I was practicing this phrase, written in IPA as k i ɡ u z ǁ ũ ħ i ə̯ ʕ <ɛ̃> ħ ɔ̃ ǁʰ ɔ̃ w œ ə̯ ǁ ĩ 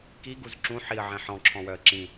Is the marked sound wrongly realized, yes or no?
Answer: no